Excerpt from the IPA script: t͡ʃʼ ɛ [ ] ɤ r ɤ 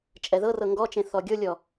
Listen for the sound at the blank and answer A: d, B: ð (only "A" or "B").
B